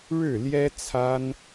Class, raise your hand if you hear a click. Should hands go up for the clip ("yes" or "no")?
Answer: no